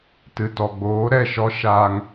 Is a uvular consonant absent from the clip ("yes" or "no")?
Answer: yes